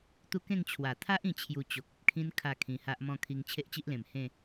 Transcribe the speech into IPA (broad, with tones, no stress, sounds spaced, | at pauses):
t̪ u˦ k ẽ˥˧ ŋ t͡ɕʰ w a˨˩ t̪ʰ a˦ ʔ ĩ˧ t͡ɕʰ j u˧ t͡ɕ o˨ k̚ ə˨ p̚ kʰ ĩ˦ n kʰ a˥˧ kʰ ĩ˧ h a˦ ʔ m ɔ̃˥˧ kʰ i˧ ŋ t͡ɕʰ e˦ ʔ t͡ɕ i˦ ʔ l ẽ˨˩ m h ẽ˥˧